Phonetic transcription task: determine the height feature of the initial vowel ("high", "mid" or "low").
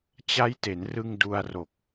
low